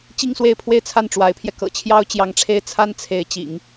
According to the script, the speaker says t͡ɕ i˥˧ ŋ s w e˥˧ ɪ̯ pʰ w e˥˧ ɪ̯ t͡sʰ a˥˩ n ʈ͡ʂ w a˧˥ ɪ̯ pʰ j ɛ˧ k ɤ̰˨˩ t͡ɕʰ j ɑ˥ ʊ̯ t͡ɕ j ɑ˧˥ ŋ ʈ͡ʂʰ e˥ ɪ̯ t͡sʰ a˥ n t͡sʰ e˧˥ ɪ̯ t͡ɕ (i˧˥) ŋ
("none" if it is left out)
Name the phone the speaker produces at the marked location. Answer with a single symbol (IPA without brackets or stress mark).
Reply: ḭ˨˩˦